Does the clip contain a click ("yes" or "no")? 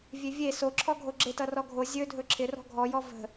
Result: yes